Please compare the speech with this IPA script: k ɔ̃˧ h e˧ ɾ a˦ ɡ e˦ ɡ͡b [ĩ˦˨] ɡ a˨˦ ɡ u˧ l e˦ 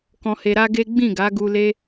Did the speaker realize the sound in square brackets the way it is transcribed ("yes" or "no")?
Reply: yes